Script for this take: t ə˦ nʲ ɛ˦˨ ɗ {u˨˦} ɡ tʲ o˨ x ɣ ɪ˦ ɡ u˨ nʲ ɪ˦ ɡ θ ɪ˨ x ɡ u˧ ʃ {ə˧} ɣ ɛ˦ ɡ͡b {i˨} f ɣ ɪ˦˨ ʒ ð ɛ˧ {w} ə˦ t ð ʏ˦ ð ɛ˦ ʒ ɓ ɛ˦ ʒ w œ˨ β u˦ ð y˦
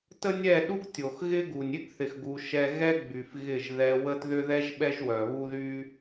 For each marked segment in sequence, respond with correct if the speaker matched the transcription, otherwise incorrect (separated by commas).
incorrect, incorrect, incorrect, correct